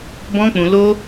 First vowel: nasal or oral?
nasal